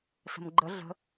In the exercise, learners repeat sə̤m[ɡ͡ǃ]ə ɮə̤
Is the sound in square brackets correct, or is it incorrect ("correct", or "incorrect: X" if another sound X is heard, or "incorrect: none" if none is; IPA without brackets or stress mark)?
correct